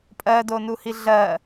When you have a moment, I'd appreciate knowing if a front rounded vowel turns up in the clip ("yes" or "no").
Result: no